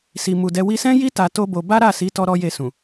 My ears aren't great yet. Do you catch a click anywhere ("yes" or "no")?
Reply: no